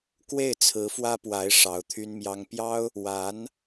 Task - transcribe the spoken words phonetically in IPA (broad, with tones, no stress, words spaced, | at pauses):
kwe˥˩ɪ̯t͡sʰɹ̩˧˥fwä˥pwa˧˥ɪ̯ ʂɑ˧˥ʊ̯t̪ʰy˥nmjɑ˥ŋ pjɑ˥ʊ̯ | wa˧˥n